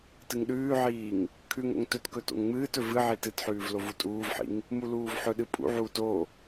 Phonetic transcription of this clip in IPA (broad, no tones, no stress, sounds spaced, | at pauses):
t ɨ ŋ ɗ ʉː ʕ iː ŋ | kʰ ʉ ŋ o̰ ŋ t ɵ t k ɵ t o̰ ŋ ŋ͡m ɨː t ɵ v ɨ ʕ i t ɨ t ħ ʉː v l o v u tʼ uː v ħ ḭ ŋ | m u l uː v ħ ɵ ɗ ɨ pʼ ṵ ʕ uː t o